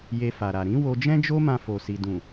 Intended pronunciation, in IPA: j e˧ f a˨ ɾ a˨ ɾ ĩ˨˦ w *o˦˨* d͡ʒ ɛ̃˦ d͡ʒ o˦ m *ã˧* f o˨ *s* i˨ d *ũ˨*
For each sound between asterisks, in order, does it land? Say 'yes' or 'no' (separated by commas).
no, yes, yes, yes